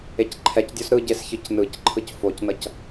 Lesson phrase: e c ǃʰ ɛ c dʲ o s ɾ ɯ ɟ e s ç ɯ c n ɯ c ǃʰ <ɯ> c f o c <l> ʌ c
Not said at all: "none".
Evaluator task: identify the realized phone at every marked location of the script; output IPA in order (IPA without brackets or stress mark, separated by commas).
ɯ, n